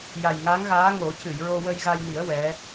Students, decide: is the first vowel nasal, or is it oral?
oral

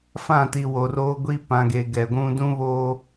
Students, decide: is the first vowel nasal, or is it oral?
nasal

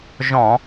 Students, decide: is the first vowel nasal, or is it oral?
nasal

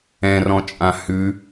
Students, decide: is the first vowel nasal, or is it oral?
nasal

